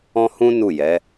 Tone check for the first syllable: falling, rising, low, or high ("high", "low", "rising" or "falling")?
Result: high